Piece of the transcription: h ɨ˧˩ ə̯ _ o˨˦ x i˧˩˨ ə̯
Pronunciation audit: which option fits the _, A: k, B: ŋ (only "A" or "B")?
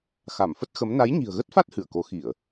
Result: A